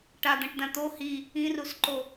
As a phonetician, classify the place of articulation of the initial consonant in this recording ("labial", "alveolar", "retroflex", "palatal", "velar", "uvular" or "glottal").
retroflex